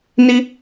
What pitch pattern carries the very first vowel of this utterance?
high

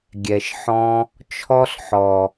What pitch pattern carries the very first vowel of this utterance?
low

